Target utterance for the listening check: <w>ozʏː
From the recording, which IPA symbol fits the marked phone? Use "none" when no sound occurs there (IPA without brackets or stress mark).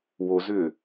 w